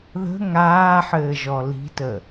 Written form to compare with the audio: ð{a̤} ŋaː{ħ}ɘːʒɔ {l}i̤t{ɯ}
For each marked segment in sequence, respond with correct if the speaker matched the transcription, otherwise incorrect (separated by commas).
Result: incorrect, correct, correct, incorrect